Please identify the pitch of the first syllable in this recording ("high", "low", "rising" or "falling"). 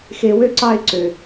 high